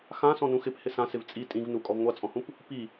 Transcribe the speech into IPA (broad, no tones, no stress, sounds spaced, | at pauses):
x ã s ɔ̃ n ũ x ɪ p h ɪ s ã s ɪ v t͡sʼ i tʼ ĩ v n u kʼ ɔ v ŋʷ a t͡sʼ ɔ̃ h ũ p | p i